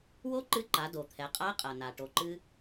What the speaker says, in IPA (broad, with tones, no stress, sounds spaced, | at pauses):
w o˥ ǃ ɨ˧˥ ǃ a˩˧ d o˩ t̪ʰ ɛ˩˧ qʼ a˧˥ qʼ ɐ˩ n a˩ ʈ o˩˧ ǃ ɨ˧